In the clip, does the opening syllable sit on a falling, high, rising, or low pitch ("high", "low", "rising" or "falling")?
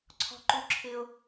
low